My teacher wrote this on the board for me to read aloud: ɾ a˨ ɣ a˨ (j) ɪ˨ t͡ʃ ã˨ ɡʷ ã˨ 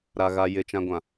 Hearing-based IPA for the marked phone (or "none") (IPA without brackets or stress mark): j